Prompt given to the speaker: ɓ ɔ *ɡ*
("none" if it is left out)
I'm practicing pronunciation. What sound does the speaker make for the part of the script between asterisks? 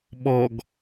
ɡ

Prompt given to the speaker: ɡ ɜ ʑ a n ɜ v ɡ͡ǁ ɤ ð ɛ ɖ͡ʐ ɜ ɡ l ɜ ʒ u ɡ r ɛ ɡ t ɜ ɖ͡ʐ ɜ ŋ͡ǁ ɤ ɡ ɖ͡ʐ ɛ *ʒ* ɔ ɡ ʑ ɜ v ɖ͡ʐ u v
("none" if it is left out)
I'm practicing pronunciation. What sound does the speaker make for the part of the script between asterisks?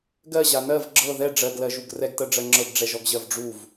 ʒ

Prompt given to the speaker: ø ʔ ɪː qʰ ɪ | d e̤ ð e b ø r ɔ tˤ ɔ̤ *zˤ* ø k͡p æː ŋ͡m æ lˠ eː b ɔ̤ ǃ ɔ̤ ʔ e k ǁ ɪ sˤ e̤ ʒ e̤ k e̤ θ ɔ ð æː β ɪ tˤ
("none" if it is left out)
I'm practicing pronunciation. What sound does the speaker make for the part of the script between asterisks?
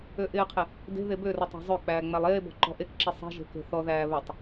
zˤ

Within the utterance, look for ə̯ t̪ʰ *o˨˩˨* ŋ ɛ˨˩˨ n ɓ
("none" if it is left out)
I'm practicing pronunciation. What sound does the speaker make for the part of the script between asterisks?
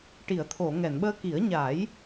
o˨˩˨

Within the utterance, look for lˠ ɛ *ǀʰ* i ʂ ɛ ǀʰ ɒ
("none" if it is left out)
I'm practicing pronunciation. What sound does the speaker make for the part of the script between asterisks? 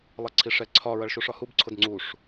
ǀʰ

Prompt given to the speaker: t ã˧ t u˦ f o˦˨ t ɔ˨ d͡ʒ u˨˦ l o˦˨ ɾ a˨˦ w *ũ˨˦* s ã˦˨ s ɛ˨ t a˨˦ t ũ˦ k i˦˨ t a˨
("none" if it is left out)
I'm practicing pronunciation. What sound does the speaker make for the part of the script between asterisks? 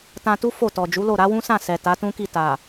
ũ˦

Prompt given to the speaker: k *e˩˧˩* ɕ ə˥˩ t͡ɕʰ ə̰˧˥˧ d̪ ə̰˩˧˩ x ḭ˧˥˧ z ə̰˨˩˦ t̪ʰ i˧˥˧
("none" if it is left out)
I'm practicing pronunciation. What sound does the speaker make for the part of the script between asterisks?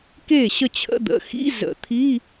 e˥˩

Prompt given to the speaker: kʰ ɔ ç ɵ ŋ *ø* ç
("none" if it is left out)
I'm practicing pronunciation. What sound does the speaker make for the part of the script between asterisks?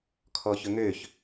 ø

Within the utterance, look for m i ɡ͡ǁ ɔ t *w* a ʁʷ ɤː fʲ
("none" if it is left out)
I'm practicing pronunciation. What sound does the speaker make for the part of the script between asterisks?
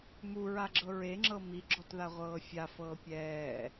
ð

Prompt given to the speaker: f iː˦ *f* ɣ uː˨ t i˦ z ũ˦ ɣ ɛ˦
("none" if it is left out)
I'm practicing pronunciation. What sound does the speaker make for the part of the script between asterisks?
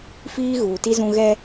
none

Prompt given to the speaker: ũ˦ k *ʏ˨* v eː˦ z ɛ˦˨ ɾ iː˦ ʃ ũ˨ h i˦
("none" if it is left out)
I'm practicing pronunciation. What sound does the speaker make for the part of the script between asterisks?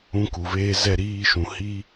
u˨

